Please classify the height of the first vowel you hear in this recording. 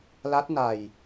low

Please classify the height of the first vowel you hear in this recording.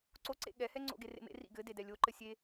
mid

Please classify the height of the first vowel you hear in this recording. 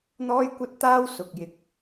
mid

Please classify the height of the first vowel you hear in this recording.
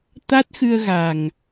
low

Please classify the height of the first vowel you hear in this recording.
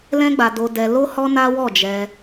mid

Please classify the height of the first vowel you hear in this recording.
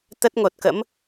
mid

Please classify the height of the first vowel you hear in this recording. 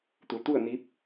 high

